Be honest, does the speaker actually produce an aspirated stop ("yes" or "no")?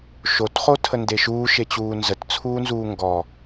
yes